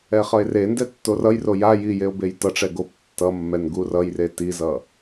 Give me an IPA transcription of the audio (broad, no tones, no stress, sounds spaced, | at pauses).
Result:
ɛ χ ʌ e̯ r e n d ɛ tː o r ʌ j r o j a j i j e o̯ b e j t ʌ ʈ͡ʂ ɛ ɡ o p tː ʌ mː ɛ n ɡ u r ʌ j r e t i z ʌ